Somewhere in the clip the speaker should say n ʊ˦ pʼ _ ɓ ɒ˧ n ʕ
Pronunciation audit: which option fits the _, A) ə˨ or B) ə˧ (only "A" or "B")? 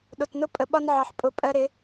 A